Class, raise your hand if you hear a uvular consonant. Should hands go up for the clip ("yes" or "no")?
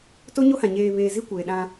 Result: no